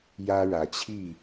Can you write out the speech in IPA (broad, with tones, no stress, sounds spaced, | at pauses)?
j ä˦ ɻ ä˨˦ t͡ɕʰ i˥˨